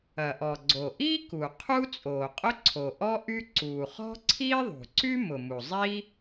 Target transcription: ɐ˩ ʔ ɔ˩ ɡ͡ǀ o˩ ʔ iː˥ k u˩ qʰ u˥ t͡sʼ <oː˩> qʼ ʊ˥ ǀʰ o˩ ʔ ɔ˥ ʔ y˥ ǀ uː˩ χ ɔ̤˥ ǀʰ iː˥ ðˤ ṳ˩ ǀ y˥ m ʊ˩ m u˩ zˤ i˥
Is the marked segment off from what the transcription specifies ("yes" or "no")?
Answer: no